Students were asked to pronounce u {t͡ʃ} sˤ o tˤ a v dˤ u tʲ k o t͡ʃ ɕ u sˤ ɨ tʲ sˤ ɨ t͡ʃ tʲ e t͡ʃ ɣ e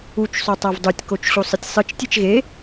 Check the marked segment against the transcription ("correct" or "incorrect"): correct